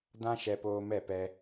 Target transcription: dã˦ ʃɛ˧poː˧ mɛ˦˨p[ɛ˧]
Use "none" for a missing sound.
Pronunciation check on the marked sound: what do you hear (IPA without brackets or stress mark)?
ɛ˧